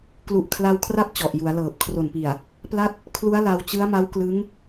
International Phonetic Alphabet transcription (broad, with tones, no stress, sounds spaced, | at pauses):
k l u˨˩ ʔ kʰ l a˧ w kʰ r a˦˥ p̚ t͡ɕ ɔ˨˩ ʔ j u˩˦ a̯ l ɤː˨˩ p̚ kʰ r o˨˩ n p i˨˩ a̯ | p l a˥˩ t̚ | kʰ l u˦˥ a̯ l a˧ w t͡ɕ ɯ˦˥ a̯ m a˦˥ w k l ɯ˦˥ ŋ